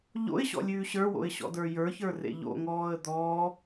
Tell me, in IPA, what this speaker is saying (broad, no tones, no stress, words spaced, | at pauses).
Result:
ʎo̰ɪ̯ɕɔ̰lʲʉː ɕə˞wo̰ɪ̯ɕɔ̰də˞ jə˞çə˞rḛ ʎo̰ŋɔːə̯ d̪ɔː